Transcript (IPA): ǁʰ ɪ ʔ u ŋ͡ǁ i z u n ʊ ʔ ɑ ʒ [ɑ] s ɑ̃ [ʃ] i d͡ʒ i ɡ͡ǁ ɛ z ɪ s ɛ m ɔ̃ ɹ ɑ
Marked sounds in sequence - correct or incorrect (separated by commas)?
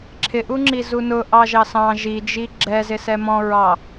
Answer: correct, incorrect